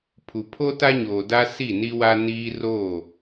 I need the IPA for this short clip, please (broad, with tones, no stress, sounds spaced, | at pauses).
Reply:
pʰ u˨ pʰ o˦ t a˦ ɲ oː˨ d a˦ s i˦˨ n i˦ w a˦ n iː˦ r oː˦˨